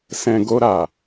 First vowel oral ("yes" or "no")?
no